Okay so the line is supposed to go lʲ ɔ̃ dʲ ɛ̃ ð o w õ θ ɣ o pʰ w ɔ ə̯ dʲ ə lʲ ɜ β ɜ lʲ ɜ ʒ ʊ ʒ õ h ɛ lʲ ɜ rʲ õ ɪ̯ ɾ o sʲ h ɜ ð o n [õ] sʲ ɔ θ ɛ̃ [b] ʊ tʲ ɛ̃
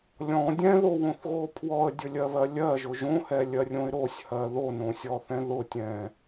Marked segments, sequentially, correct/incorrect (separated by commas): correct, incorrect